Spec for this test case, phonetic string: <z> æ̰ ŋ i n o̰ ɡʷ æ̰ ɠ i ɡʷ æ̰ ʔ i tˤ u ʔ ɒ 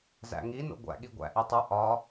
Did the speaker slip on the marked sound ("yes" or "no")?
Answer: no